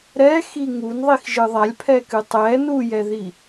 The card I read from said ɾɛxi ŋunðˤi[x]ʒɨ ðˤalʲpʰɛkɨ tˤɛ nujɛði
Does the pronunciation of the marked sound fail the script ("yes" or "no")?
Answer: no